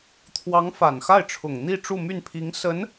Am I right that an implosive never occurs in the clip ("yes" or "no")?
yes